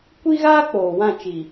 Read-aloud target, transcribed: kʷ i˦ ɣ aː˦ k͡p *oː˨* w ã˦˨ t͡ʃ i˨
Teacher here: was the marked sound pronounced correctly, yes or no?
yes